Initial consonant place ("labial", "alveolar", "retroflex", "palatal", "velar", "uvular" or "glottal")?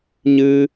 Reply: palatal